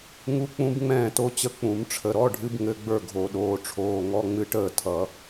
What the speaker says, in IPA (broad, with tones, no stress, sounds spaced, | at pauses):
ŋ u˦˥ k͡p ũ˦˥ b ŋ͡m ɛ̃ː˥˨ t o˦˥ t͡ɕ ə˥˨ k͡p ũ˨˩˦ m ʈ͡ʂʰ ə˩˧˩ ɾ ɔ˧˥˧ ɖʱ ɨ˦˥ b ŋ ɘ˧˥˧ ɡ͡b ə˞˥˨ ɡʱ o˨˩˦ ɗ oː˩˧˩ ʈ͡ʂʰ oː˩˧˩ ŋ ɔ˧˥˧ ŋ͡m ɨ˦˥ ʈ əː˥˨ tʰ ʌ˨˩˦